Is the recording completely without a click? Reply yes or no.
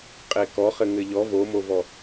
yes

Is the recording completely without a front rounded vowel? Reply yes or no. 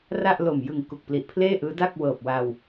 yes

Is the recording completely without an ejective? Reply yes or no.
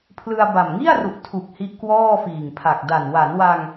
yes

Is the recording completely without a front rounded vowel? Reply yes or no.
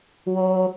yes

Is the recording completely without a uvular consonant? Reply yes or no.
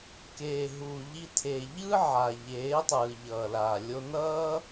yes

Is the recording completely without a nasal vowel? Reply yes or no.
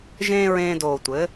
no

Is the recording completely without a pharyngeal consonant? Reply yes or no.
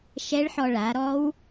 no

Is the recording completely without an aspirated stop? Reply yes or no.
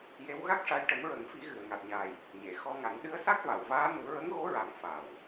yes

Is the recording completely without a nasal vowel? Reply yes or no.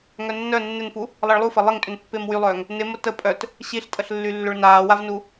yes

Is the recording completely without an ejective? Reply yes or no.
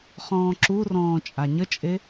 no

